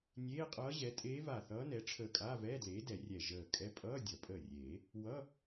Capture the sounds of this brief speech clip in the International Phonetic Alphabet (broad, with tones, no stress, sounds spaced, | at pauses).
nʲ eː˧˥˧ qʼ ʌː˧˥ ʑ ɛ˩˥ tʼ eː˧˥ v a˧˩ θ ʌː˧˥ n ɛ˩˥ ʈ͡ʂʰ əː˧˩ kʼ aː˧˥˧ v ɛː˧˥˧ d l eː˩˥ d ɛ˨˩˦ rʲ ɛ˧˩ ʒ əː˧˩ kʼ ɛ˧˥ pʼ ʌː˧˥˧ dʲ ʌ˨˩˦ pʼ əː˧˩ rʲ eː˨˩˦ | w ʌː˧˥˧